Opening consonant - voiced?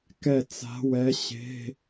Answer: no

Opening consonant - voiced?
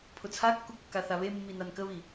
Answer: no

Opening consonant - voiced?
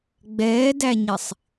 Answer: yes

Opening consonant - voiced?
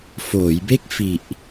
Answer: no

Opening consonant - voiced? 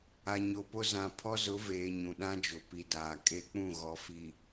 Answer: yes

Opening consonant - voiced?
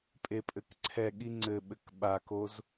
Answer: no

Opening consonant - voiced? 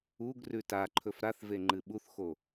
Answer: yes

